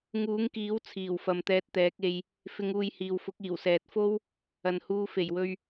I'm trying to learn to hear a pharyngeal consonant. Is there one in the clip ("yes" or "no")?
no